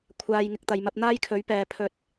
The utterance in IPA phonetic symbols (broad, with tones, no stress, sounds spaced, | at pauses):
kʷʰ aː˨ j ŋ ɪ˨ k̚ t̪ ɐ˨ j m ɐ˧ p̚ n̪ aː˥ j kʰ ɵ˨˥ ɥ p ɛː˨ pʰ ɵ˨ t̚